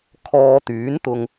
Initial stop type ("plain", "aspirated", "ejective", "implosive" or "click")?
aspirated